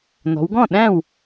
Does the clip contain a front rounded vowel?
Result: no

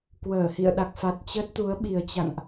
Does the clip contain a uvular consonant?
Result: no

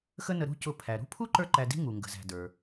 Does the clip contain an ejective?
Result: no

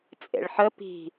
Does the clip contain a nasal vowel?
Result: no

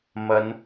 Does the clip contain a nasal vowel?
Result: no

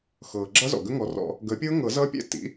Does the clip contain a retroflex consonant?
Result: no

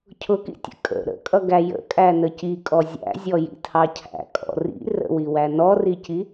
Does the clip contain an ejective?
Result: yes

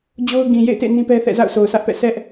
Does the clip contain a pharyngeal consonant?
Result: no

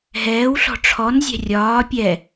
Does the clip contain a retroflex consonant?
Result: yes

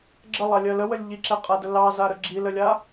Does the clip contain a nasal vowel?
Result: no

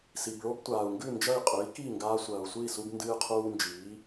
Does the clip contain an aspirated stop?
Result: yes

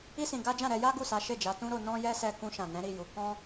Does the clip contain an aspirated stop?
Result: no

